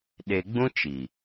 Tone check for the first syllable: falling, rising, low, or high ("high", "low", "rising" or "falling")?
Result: low